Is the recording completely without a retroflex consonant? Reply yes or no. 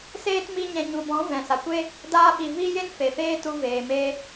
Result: yes